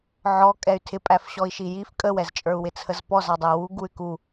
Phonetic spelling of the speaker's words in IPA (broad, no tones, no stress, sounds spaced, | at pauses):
ʕ ɔ kʼ ɛ y̯ tʰ ɪ pʼ æ f ɕ ɔ i̯ ʃ i j i f kʼ ə w ɛ z t͡ʃʼ ə˞ u̯ w ɪ t͡sʰ ə z p ɔ z ɑ dˤ ə u̯ w u ɡ u y̯ k u